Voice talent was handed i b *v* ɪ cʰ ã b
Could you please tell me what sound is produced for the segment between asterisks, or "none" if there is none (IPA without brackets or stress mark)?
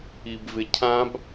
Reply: v